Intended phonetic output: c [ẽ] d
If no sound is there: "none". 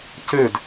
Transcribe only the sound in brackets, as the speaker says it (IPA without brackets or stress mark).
e